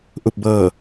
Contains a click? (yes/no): no